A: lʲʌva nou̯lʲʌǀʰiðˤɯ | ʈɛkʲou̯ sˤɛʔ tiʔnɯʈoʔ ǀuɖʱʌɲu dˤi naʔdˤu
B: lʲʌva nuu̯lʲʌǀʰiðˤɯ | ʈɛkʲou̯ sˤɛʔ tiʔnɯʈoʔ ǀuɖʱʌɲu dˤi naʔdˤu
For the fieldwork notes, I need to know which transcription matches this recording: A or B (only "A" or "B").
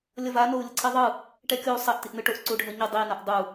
A